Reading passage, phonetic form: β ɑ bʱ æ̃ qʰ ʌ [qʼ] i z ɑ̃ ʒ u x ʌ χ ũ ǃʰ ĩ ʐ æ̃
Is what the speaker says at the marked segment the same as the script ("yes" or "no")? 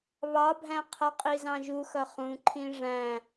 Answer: yes